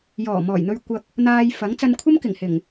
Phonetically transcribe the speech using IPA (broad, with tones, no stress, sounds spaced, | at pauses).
j ɔː˨˩ m ɔː˨˩ j n̪ ɵ˧ ɥ kʷ ɐ˧ k̚ | n̪ aː˧ j f ɐ˨˥ ŋ t͡s ɐ˧ n kʷʰ ɐ˥ m k ɪ˨˩ ŋ h ɪ˨˩ ŋ